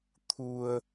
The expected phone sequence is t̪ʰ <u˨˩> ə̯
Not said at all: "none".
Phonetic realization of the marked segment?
u˧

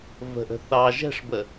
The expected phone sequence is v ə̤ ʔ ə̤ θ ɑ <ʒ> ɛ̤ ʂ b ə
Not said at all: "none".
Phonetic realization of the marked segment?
ʒ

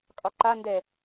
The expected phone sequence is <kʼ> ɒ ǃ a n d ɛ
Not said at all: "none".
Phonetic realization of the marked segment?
kʼ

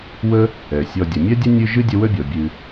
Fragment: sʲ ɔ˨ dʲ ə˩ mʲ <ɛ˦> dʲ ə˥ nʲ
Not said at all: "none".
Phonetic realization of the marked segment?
ɛ˥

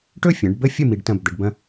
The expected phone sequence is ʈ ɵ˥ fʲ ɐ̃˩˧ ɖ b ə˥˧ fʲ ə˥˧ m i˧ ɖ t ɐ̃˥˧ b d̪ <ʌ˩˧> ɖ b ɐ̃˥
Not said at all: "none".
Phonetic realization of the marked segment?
ə˩˧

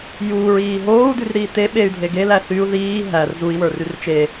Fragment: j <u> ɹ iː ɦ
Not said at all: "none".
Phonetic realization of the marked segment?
uː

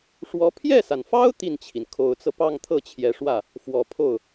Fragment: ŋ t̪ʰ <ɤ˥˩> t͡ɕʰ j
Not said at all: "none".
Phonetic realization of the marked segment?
ɤ˥˩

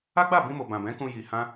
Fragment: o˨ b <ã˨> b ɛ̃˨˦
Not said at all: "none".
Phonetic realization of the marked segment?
ã˨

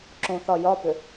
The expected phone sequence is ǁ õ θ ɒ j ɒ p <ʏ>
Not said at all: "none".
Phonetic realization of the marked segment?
ʏ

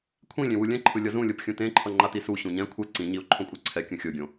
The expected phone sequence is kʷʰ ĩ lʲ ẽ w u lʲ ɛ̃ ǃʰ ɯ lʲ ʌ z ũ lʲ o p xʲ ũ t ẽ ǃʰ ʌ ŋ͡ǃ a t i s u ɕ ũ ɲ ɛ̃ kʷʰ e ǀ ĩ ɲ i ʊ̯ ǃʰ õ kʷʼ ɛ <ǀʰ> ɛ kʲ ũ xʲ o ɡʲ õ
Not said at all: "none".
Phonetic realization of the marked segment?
ǀʰ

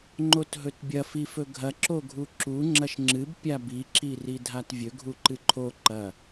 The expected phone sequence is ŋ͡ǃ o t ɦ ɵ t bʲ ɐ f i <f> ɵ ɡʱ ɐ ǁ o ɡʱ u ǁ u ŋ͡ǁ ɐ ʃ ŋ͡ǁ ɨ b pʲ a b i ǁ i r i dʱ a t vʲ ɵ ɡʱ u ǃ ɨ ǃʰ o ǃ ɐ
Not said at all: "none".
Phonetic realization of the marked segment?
f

